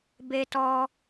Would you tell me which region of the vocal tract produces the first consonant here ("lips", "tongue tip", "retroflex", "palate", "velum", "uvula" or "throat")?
lips